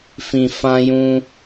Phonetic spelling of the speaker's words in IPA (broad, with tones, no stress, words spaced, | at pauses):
fĩ˨ fã˦jũ˦